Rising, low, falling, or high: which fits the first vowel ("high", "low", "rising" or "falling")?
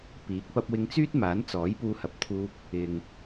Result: rising